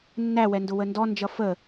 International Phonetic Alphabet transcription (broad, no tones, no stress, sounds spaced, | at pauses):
nː æ w ɛ n d ʊ w ə n d ɔ n d͡ʒ ʌ f ə